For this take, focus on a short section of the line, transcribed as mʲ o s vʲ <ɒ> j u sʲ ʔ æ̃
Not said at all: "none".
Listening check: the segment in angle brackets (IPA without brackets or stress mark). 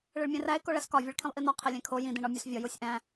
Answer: ɒ